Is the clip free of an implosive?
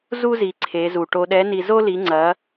no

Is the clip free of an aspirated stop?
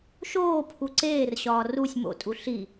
no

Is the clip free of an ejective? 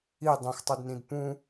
yes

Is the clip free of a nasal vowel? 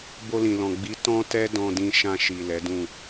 no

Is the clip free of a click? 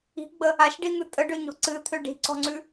no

